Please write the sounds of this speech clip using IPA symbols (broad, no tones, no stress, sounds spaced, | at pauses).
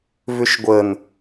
v ʏ ʃ ɡʷ ə n